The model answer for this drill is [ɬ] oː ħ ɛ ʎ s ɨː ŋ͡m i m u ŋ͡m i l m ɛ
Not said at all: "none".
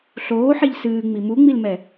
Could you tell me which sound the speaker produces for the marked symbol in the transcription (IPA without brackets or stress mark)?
ɬ